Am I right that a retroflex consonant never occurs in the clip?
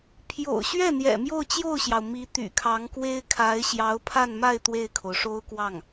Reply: no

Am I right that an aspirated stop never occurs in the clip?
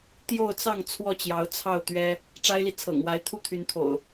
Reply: no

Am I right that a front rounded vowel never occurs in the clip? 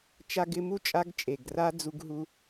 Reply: yes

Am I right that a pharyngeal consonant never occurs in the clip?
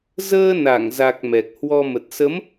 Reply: yes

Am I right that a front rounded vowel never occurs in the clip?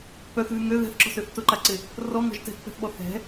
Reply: no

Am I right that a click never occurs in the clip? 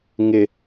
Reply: yes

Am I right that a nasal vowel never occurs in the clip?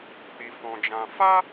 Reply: no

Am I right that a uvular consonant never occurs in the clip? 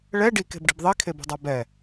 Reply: yes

